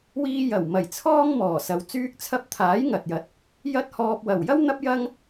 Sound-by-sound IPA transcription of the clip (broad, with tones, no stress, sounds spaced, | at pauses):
w iː˧ j ɐ˨˩ w m ɐ˨˩ j t͡sʰ ɔː˥ ŋ m ɔː˨˩ s ɐ˨ w t͡s yː˧ k̚ t͡sʰ ɐ˧ p̚ t̪ʰ aː˨˥ j ŋ ɐ˨ t̚ j ɐ˨ t̚ | j ɐ˥ t̚ h ɔː˧ p̚ w ɐ˨˩ w j ɐ˥ w n̪ ɐ˥ p̚ j ɐ˥ ŋ